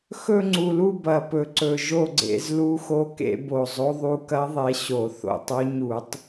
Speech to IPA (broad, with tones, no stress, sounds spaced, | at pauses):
x ɵ˦˨ ŋ͡ǀ u˨˩ l u˦˨ b ɐ˨˩ p ɵ˨˩ ǀ ɵ˨˩ ʒ o˦˨ ɡ͡ǀ ḛ˧˩˧ z l u˧˥ x o˧˥ k ḛ˧˩˧ b o˨˩ zˤ o˧˥ ðˤ u˧˥ k ɐ˧˥ ðˤ e˧˥ ɕ o˧˩˧ θ o̰˧˩˧ tˤ o˧˥ ɲ u˧˩˧ tˤ